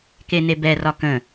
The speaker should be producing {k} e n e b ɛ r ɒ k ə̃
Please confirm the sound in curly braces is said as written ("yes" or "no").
yes